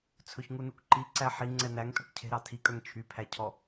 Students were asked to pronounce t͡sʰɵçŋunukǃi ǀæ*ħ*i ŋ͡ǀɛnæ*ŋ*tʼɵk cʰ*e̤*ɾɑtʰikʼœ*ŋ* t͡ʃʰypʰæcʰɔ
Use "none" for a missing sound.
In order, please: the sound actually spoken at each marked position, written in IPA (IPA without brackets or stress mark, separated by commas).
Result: ħ, ŋ, e̤, ŋ